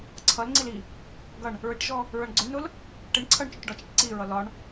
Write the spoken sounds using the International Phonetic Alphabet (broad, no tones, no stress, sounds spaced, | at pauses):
ǀʰ ʌ l ŋ͡ǀ i l i | ɡ ʌ ɳ | ɹ ɪ ʈ ʒ ɔ | ɹ ʌ ɳ ɡ͡ǀ ʊ ɳ n ʊ l | ʈ ɪ ɳ ǀʰ ʌ ɳ t͡ʃ ʊ ʈ ɖ ɒ t͡ʃ ɛ ʈ ǀ i ɹ ʌ l ɒ ɳ